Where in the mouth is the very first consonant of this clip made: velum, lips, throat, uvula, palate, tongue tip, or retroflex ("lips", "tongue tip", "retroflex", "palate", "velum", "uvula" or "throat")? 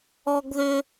velum